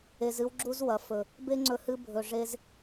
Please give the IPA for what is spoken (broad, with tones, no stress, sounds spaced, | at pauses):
e˧ z ɨ˦ w ɡ͡ǁ u˦ z w ɐ˨ f ɵ˨ | b e˦ ŋ͡ǀ ɵ˧ h ɨ˧ bʱ ɵ˨ ʐ e˧ z